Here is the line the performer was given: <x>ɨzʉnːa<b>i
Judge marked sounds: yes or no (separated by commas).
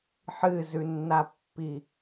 no, no